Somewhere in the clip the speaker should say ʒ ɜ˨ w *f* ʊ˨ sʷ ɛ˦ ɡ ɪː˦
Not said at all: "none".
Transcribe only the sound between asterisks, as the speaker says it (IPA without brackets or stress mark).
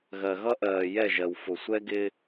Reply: f